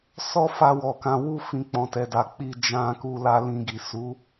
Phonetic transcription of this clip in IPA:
s ɔ˦ f a˧ w ɔ˨ k ã˧ w u˧ f ĩ˨ k͡p ɔ̃˨ t ɛ˨ d a˨ k͡p i˧ d͡ʒ ã˧ k u˧ l a˧ l ĩ˧ ɡ i˨ s u˨˦

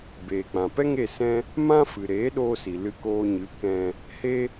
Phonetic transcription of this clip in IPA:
b eː˨ k͡p ã˨ p ɛ˦ ŋ e˦˨ s ɛ̃˦ | m ã˦ f ɨ˨ ɾ eː˨˦ ɗ oː˧ s i˨ l ɨ˧ k oː˧ ɲ ɨ˨˦ k ɛ̃˧ | h e˦

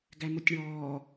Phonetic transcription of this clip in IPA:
ɡ æ m o tʲ ɳ ɔː

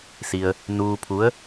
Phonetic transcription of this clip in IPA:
s i˧ ə̯ | n uː˧ pʰ u˧˥ ə̯

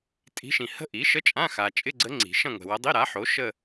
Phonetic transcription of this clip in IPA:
tʼ i̤˧˥ ʃ ĩ˨ h ə̤˥˧ ʔ i˩˥ ʃ ə˧˥˧ t͡ʃʼ ã˧˥˧ x a˨ t͡ʃʼ ɪ˧˥˧ ɡ͡ǀ ə˧˥ ŋ͡ǀ i̤˨˩˦ ʃ ɐ̃˥˧ ŋʷ ɛ̤˨ w ɐ˧˥ dˤ i˧˥˧ ɾ a˩˥ ħ o˩˥ ʃ ə˥˧

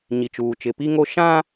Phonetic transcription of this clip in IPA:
ɲ i˨ t͡ʃ uː˨ t͡ʃ ɪ˨ p i˦ ŋ o˦ ʃ ã˦

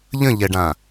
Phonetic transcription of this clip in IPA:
ʎ ə̃ ʎ ɛ ɖ ã

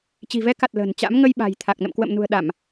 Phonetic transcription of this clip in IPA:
t͡ɕ i̤˨˩ v ɛ˨˦ k a˨˩ t̚ l ə̤ː˨˩ n t͡ɕ a̰˧˥ m ŋ ə˧ j ɓ a̤˨˩ j t̪ʰ a˨˩ k̚ n ə̰˧˨ m k w ə̰ː˧˨ m n ṳ˨˩ ə̯ ɗ a˧˩˨ m

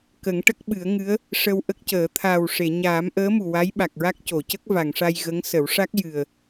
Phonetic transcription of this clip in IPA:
k ə˨˩˦ ŋ ʈ ə˦˥ k̚ ɓ ɨ˨˩˦ ə̯ ŋ ɨ˧˥ ə̯ | ʂ ə˧ w ʔ ə˦˥ k̚ c əː˨˩˦ t̪ʰ aː˨˩ w ʂ e˨˩˨ ɲ aː˨˩˦ m ʔ əː˧˥ m u˨˩ w a˧˥ j ɓ a˨˩ k̚ ɹ a˦˥ k̚ c o˨˩˨ c ə˦˥ k̚ v a˨˩˨ ŋ ʂ a˧ j ɣ ə˧˥ ŋ s ə˨˩˦ w ʂ a˦˥ k̚ j ɨ˨˩ ə̯

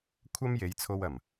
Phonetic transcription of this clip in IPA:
kʷʰ ɐ˥ m j e˨˧ j t͡sʰ o˧ w ɐ˨˩ m

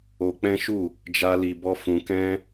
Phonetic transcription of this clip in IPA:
o˧ k͡p ɛ̃˦ ʃ u˦˨ | d͡ʒ a˦ l i˧ b ɔ˦ f ũ˧ k ɛ̃˦

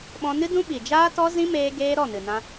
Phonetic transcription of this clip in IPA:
ɓ ɔ̃˧ n ɨ˦ d ũ˦ ɓ i˨ d͡ʒ aː˦ t ɔ˦ z ĩ˦ m eː˧ ɡ eː˦ ɾ ɔ˦˨ n ɨ˨ n ã˧

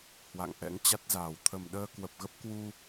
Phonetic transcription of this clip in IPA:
h w a̰˧˨ ŋ ʔ ɛ̰˧˥ ŋ t͡ɕ a˦˥ t̚ z aː˨˩ w t̪ʰ ə˨˩ m ɗ əː˧ k w ə˨˩ p̚ ɣ ə˦˥ p̚ k w u˧

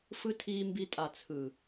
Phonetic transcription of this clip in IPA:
f ɯ˧ tʰ iː˧ m b i˧ tʼ a˨ t͡sʰ ɯ˨

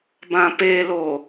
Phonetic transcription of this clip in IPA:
b ã p e l o

